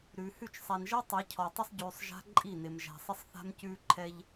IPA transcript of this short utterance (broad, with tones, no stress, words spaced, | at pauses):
ɾʉː˨hʉ˦˨t͡ʃ sˤæ˨nʒɜ˦ tˤɛ˨˦cʰɔ˨ tˤɪ˦sˤɟʉː˨sˤ ʒa̤˦ ǃʼi˦˨nɪ˨m ʒæ̤˨sˤɪ˦sˤ θa̤˦mcʉː˦ǃʰɛ˦ʎ